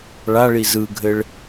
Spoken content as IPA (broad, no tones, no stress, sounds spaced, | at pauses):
ɭ a ɭ i z ɯ ɡʱ ɘ ɭ